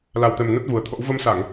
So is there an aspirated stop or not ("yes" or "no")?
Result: yes